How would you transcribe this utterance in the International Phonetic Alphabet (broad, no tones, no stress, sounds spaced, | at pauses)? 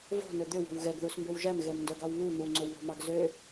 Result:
v o̤ n ɵ d̪ ø w o̤ w ɣ ɛ ɡ ð u s m b ø w ʒ æ m ɣ ɛ m n d œ ɡ ɑ w β u n̪ u ŋ͡ǀ o w β o̤ m ɑ ɡ z ø